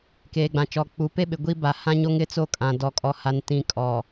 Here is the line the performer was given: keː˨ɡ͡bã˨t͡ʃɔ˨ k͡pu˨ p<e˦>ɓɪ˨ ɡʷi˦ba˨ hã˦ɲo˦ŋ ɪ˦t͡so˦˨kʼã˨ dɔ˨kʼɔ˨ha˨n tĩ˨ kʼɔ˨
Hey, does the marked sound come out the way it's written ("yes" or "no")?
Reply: yes